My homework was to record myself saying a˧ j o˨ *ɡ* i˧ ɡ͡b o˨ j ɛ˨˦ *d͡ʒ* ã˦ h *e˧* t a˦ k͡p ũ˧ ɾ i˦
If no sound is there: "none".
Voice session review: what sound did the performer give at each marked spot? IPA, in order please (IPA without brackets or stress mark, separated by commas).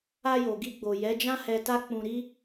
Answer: ɡ, d͡ʒ, ɛ˧